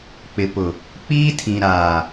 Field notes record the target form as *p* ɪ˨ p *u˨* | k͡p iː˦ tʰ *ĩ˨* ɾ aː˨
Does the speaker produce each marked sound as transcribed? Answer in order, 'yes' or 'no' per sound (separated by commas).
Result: no, no, yes